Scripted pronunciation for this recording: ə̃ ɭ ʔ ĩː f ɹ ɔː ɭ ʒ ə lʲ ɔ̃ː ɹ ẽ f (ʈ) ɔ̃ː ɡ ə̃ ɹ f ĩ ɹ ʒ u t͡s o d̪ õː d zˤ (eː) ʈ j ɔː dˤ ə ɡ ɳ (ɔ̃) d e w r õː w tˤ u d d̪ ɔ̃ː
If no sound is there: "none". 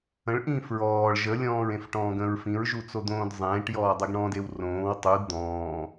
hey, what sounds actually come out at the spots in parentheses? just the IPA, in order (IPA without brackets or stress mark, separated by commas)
ʈ, ẽː, ɔ̃